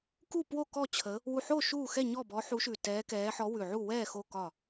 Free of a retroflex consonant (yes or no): yes